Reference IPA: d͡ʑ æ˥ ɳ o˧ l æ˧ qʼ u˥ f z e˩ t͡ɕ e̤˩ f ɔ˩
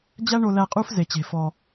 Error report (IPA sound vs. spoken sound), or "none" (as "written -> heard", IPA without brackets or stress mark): none